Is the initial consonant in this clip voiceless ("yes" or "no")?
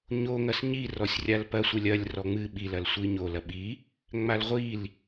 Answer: no